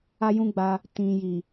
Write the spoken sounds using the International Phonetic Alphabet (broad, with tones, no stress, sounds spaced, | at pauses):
a˦ j ũ˦ ɡ͡b a˧ | t ĩ˨ j i˨